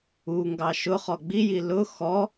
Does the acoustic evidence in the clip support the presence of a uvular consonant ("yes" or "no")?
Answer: yes